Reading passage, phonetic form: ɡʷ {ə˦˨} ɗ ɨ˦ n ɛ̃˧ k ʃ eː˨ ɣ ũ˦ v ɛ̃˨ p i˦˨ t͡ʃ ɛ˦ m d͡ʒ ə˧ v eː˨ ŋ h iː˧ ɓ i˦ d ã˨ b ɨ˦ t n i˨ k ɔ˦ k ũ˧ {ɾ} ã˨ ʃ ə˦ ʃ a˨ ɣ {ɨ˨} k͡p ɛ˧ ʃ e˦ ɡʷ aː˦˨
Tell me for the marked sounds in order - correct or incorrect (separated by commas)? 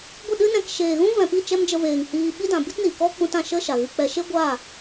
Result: correct, incorrect, incorrect